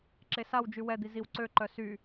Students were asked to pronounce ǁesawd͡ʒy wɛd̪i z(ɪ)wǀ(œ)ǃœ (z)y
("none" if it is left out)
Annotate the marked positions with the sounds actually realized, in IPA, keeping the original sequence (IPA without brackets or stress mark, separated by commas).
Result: i, ø, s